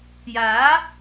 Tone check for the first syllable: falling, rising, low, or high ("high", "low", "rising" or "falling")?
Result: rising